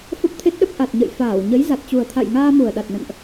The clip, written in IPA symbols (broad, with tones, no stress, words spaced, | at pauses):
fə˦˥p̚t̪ʰe˦˥t̚ɗə˦˥p̚ ʔa˨˩t̚ɲə̰˧˨jfaː˧˩w ɲə˨˦j za˨˩t̚t͡ɕu˨˩ə̯ t̪ʰa̰˧˨jŋaː˧mu˨˩ə̯ɗa˨˩t̚ nə̰˧˨nʔ